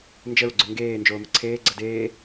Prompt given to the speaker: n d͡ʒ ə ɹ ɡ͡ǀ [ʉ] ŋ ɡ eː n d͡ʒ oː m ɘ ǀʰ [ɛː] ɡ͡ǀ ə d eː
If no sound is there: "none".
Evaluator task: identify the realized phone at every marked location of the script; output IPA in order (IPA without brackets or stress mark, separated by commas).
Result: ʉ, eː